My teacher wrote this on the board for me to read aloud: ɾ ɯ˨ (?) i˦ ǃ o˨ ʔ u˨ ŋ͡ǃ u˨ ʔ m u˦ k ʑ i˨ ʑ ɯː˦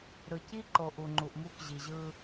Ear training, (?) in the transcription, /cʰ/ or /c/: c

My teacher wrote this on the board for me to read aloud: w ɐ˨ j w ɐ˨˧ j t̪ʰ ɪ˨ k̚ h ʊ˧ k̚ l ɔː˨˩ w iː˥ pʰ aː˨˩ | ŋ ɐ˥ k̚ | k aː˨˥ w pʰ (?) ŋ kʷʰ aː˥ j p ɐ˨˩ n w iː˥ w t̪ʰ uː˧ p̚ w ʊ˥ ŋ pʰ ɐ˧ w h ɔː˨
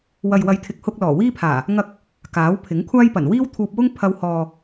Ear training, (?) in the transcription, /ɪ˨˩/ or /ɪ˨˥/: ɪ˨˥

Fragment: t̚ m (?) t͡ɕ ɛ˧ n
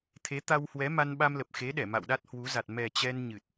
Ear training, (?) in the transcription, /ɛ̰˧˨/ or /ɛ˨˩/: ɛ˨˩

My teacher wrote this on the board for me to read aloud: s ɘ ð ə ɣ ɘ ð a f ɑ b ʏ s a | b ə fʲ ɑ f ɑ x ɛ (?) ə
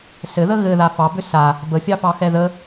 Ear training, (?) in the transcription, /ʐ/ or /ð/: ð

